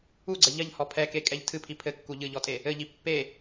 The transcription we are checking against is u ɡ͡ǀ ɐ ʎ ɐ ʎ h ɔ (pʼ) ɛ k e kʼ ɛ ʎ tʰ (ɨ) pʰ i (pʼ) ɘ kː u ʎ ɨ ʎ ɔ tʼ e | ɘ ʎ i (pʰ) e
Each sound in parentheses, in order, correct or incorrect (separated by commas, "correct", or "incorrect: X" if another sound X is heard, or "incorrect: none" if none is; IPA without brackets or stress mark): incorrect: pʰ, correct, incorrect: pʰ, incorrect: pː